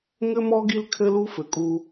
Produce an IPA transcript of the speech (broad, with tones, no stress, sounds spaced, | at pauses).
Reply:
ŋ ɘ˦ m ɔ˦ ɡ i˦ l kʰ ɘ˦ l u˦ f ɘ˨ kʼ u˧